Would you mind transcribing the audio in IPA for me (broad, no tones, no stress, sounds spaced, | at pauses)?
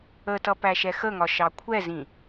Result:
ə t ʌ p æ ʃ ɛ x ə ŋ ɒ ʃ ɑ kʷʰ ɛ z ĩ